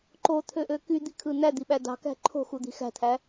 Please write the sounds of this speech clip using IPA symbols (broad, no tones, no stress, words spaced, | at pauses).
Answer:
ǃot̪ʰøʔø kyd̪ikʰɯ n̪æd̪iɓæ dɑ̤kæ̤ ǃʰo̤xud̪i̤ xæ̤t̪ʰæ